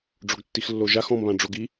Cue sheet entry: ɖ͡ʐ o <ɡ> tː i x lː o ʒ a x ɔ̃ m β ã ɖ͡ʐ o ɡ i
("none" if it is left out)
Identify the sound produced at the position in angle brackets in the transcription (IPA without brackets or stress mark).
ɡ